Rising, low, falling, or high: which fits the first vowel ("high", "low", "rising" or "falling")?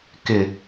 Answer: low